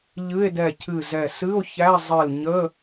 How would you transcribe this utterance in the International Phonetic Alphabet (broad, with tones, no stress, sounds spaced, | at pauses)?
ʎ ɨ˧˥˧ e̯ d ɛ˧˩ cʰ ɨ˧˩ z ɛ˧˩ s ɨ˧˥˧ o̯ ç æ˧˥˧ zˤ ɨ˧˩ l ɲ ə˧˥˧